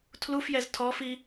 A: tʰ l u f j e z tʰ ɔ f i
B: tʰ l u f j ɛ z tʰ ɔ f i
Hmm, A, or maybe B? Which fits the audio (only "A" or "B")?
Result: B